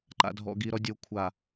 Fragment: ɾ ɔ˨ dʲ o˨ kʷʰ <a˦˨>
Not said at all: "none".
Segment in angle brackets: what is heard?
a˨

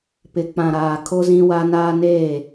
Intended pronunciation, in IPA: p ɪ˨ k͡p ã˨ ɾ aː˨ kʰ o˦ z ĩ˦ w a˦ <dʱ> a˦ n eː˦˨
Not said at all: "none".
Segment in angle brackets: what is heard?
n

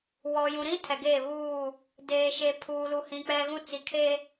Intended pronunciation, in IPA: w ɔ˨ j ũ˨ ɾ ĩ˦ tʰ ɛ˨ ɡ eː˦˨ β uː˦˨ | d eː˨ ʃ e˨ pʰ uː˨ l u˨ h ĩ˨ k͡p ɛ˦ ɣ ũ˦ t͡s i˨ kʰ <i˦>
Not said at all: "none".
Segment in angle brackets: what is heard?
e˦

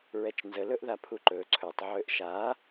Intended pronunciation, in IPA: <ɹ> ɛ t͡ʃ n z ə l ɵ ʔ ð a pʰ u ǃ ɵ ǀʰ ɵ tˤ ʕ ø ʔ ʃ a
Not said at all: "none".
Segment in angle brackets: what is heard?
ɹ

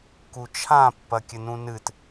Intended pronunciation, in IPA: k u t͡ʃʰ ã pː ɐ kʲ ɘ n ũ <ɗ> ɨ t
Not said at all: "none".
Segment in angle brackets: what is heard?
n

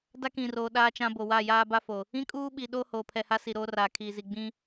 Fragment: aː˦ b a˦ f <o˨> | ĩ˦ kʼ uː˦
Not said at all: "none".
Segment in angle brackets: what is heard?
o˨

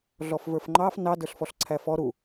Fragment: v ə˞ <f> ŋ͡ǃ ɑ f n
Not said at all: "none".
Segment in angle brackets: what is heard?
f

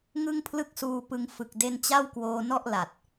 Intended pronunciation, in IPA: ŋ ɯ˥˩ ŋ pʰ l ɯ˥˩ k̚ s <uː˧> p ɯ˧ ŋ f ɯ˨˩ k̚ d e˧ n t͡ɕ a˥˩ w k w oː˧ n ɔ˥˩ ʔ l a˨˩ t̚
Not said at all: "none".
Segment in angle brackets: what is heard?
uː˧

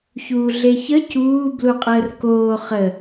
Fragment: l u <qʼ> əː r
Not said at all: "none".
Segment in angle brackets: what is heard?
qʼ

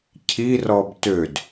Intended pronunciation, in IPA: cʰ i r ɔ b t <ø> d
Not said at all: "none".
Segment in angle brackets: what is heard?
ø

